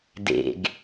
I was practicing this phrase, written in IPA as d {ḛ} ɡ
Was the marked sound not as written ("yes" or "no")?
no